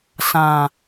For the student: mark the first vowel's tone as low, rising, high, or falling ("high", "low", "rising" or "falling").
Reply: low